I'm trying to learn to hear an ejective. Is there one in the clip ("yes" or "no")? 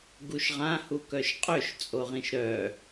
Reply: yes